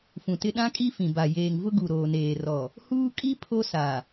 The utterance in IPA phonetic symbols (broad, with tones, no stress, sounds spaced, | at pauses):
f ũ˨ t ɪ˦ ɗ ã˦ kʼ i˦ f ĩ˨ b a˨ j eː˨ ŋ v ʊ˦ ɡ u˨ ɾ oː˨ n eː˨ r ɔ˨ | h uː˦ kʼ i˦ pʰ o˦ s a˨